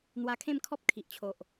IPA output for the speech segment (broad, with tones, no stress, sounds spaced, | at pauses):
n̪ w a˧ kʰ ẽ˥˧ m kʰ ɔ˦ p̚ kʰ i˨ ʔ t͡ɕʰ o˨ ʔ